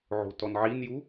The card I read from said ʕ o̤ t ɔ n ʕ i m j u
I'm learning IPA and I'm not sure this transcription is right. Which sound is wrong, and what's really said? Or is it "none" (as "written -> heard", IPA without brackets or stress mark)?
m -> n